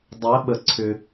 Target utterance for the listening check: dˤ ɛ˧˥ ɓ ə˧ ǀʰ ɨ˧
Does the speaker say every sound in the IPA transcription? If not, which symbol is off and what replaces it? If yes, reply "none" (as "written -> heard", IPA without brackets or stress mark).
ɨ˧ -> ʏ˧